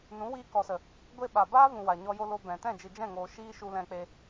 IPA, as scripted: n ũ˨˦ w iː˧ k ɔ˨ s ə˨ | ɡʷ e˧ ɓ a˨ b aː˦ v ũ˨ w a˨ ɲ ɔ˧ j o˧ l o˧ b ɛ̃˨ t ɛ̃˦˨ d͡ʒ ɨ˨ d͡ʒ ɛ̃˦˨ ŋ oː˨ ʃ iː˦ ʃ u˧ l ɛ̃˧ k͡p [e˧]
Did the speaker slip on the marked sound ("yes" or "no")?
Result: no